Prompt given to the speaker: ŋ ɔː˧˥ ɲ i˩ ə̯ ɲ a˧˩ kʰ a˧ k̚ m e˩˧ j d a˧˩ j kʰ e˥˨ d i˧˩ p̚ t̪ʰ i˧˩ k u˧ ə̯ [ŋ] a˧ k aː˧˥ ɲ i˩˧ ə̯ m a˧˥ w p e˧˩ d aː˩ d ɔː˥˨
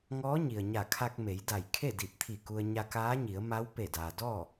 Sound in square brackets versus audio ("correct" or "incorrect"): incorrect